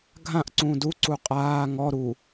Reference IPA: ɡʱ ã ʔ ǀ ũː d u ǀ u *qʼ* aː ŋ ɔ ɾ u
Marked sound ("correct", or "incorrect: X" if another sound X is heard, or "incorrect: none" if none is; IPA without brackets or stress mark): correct